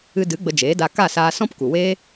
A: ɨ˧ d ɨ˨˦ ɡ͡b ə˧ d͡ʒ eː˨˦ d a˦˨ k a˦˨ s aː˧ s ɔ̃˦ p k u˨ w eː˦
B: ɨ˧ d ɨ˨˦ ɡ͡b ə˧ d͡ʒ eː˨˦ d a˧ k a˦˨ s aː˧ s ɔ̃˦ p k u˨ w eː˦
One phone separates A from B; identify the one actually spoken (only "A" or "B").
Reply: B